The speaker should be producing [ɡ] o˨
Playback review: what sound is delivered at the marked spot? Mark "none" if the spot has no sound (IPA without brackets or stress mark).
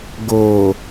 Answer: ɡ